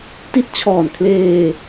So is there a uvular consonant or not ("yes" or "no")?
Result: no